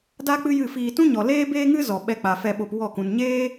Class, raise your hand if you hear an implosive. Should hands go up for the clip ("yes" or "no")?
yes